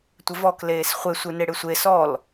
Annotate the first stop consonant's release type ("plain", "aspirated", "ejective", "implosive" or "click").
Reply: plain